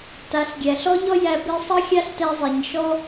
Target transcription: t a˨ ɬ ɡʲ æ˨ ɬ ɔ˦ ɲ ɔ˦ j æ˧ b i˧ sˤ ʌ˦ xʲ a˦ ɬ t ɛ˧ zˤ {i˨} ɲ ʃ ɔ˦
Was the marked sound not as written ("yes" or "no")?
no